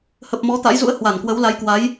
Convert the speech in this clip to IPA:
h ə˨˩ p̚ m ɔ˨˦ t̪ a̰˧˥ j z ṵ˧˥ ə̯ h w a˧˩ n k w ə˨˦ w l a˨˦ j k w a˨˦ j

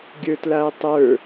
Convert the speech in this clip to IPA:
ɡʲ ə˞ t l a ʊ̯ tˤ ə˞

